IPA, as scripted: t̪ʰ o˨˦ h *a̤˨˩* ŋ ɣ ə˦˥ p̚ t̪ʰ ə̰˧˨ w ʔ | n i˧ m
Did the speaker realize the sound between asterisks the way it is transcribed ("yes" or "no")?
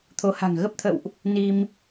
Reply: yes